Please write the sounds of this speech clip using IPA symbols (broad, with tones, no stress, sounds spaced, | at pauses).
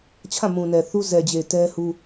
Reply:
t͡ɕʰ ã˦˨ m ũ˨ n ɛ˨ θ u˦ z ɛ˨ d͡ʑ e˨ t ɛ˦ h u˦